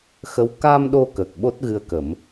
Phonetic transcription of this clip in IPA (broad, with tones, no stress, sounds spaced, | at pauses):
x ə˧˥ w k a˧ m ɗ o˧ k ə˨˩ k̚ ɓ o˦˥ t̚ ɣ ɨ˧ ə̯ k ə˨˩˦ m